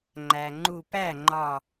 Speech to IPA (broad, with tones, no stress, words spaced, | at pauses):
ŋ͡ǃæ˩ŋ͡ǃu˧˩ pæ˥˩ŋ͡ǃɒ˧˩